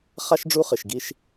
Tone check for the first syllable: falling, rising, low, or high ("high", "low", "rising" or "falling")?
high